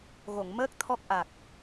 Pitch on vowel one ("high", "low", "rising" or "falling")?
low